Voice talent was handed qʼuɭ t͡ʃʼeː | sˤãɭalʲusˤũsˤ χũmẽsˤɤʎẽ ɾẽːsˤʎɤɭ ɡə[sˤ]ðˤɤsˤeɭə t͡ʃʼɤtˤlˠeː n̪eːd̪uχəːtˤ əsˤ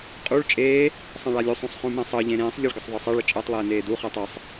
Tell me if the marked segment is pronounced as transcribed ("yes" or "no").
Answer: yes